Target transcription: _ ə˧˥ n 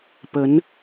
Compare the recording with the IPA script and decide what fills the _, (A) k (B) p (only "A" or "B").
B